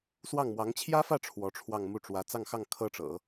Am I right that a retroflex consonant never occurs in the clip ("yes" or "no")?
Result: no